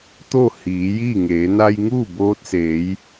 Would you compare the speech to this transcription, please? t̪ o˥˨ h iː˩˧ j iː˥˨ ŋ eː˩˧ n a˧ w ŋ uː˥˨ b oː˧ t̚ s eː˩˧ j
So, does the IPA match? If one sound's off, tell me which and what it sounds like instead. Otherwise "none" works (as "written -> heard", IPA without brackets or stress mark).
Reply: w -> j